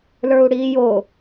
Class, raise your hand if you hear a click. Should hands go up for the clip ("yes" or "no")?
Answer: no